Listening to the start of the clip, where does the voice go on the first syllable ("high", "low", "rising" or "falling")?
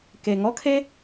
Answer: low